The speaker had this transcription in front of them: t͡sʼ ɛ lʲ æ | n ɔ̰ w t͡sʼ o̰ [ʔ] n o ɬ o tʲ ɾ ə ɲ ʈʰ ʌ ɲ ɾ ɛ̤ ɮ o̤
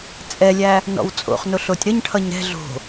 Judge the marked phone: incorrect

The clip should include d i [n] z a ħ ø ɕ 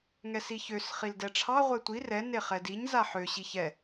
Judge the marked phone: incorrect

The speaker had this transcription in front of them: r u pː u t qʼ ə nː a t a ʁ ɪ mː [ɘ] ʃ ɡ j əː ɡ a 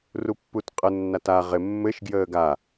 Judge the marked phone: correct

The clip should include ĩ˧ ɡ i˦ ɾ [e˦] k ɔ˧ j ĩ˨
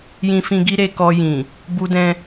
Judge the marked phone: incorrect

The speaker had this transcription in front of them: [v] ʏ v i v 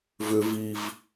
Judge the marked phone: correct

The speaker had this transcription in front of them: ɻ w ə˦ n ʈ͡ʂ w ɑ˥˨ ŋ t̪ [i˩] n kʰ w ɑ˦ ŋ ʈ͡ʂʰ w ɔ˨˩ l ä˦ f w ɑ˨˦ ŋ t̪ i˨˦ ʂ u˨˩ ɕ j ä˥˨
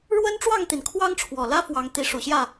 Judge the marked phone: correct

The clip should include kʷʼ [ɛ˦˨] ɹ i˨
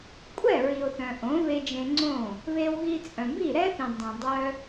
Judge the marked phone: correct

